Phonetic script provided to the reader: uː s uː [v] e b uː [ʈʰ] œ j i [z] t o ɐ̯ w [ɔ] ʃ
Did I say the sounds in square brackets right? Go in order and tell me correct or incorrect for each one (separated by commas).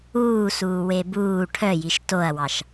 incorrect, correct, incorrect, incorrect